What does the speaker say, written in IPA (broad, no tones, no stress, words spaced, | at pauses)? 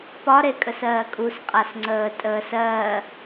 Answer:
pɒɾekʼəs ɜːkʼus qʼasŋ͡ǀəː tʼəːs ɜː